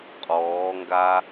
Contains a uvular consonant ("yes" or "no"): yes